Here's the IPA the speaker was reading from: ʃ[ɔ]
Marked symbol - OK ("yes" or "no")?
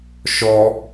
yes